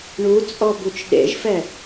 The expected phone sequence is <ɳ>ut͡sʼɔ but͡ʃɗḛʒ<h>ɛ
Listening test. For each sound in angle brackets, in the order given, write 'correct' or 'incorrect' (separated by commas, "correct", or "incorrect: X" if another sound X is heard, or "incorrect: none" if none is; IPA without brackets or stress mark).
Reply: correct, incorrect: f